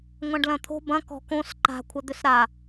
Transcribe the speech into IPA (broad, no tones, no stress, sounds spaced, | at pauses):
ŋʷ ã ɖ l ɐ̃ t̪ʰ o̤ b ɐ̃ k ɔ̤ k õ s ǃ a̤ kʷʰ ɐ d̪ ʏ s ɾ a